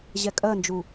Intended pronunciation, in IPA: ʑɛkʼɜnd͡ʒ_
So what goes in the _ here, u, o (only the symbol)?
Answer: u